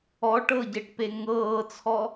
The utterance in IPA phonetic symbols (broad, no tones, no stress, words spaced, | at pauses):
ɔ ʈɤɟeʈpe ŋɤːt͡sʰɔ